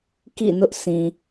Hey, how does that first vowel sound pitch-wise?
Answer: falling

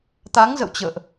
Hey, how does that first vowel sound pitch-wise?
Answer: rising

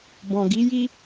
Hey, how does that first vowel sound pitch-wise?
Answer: low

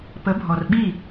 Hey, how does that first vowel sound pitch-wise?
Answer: rising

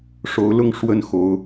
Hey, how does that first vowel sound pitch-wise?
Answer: rising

